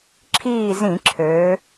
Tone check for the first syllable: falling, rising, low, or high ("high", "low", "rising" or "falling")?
falling